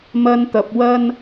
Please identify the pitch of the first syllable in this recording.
high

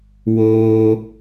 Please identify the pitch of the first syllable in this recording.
high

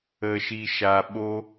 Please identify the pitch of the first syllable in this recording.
low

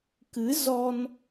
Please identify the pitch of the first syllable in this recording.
rising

